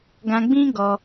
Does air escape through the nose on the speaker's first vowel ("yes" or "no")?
yes